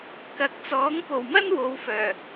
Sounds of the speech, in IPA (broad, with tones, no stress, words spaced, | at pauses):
kɐ˨˥k̚t͡sɔː˨˥ŋ po˨˩wmɐ˥n wo˨˧wfœː˨˩